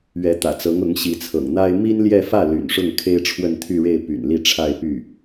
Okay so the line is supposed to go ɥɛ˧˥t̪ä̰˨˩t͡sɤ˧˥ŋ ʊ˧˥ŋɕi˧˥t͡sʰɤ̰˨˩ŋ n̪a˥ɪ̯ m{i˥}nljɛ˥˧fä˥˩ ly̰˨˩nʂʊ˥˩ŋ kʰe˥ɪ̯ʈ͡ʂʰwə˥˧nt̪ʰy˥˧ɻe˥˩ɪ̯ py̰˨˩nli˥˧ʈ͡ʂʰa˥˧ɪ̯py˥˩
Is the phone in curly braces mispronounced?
no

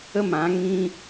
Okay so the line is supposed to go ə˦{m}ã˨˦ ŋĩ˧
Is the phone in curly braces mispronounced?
no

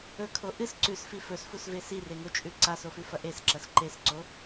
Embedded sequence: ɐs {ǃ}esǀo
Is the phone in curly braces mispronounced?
no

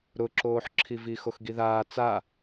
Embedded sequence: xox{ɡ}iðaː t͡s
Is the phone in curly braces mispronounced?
no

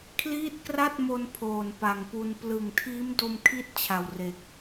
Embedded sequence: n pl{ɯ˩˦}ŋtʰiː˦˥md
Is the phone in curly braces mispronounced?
yes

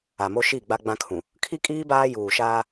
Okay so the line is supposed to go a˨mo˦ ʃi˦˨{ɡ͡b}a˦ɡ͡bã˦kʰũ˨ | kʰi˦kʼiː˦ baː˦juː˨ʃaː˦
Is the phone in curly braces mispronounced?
no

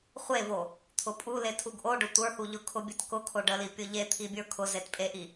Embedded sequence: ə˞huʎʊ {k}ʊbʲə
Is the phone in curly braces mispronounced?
yes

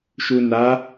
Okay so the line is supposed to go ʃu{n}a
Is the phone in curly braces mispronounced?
no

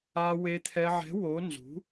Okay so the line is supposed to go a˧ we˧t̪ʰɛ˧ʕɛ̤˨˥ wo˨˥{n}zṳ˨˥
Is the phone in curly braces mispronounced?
no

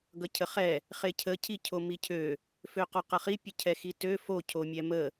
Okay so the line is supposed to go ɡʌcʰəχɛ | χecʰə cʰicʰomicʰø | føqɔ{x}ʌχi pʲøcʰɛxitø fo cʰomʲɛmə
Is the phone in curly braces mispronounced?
yes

